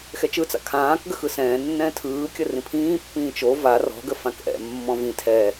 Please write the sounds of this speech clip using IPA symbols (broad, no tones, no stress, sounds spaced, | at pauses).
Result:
x ɛ t͡ʃ ɯ t͡s a̰ kʰ ãː k ɡ ə x ɯ s ɛ̃ː nː ɛ̃ː tʰ ɯː kʲ ə r ĩ pʰ ĩː pː ĩː t͡ʃ o v a r ɔ̤ ɡ ə f ã k ʔ ɛ̰ mː ɔ̃ v ĩ tʰ ɛ